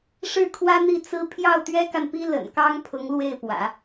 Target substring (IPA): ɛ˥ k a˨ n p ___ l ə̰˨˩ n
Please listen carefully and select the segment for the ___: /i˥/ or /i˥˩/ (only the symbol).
i˥